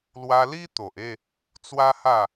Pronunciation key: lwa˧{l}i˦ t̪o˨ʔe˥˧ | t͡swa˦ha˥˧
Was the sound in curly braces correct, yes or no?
yes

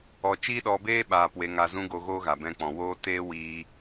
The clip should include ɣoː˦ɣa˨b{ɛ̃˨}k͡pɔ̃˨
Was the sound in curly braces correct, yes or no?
no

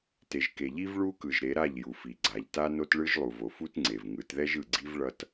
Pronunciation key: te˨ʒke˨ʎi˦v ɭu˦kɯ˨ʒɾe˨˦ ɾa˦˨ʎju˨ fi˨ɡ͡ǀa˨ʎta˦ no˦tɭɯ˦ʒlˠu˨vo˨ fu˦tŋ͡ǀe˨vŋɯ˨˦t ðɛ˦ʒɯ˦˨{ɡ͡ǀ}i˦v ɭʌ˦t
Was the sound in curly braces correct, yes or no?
yes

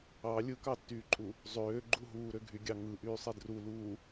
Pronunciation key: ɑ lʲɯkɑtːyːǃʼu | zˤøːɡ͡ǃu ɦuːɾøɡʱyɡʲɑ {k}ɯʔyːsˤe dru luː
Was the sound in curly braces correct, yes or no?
no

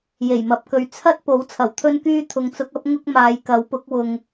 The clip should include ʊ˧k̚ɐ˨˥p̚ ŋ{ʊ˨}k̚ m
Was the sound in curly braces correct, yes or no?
no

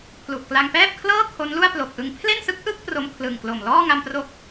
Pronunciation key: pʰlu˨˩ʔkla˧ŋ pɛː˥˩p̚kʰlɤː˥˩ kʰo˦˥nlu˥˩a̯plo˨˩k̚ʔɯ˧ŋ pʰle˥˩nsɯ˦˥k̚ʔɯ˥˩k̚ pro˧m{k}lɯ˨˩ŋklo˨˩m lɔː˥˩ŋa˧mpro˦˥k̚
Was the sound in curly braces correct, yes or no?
no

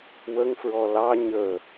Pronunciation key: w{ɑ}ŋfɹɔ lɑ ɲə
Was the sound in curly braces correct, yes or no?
no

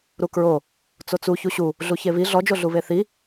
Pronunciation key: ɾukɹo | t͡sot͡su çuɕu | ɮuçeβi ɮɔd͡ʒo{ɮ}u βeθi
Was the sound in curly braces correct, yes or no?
yes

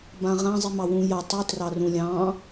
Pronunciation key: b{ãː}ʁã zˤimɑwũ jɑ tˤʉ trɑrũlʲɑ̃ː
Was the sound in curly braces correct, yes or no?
no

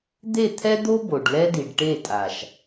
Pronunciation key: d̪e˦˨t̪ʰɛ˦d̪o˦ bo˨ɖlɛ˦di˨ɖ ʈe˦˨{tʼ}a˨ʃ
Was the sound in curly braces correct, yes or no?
yes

